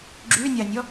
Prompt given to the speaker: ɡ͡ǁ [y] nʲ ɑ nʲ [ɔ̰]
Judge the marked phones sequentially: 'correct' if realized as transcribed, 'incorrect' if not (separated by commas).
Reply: correct, incorrect